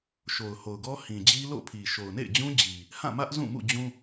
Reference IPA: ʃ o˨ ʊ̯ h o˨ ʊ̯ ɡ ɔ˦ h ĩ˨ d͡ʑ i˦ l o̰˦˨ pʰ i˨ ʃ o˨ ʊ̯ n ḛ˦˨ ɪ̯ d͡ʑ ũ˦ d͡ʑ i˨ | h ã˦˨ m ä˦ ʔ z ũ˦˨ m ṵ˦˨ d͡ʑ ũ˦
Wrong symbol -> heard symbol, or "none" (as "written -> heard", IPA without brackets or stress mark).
none